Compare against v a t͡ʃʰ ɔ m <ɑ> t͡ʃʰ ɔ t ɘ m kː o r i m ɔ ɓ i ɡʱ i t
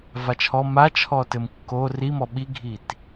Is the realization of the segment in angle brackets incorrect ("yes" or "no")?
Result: yes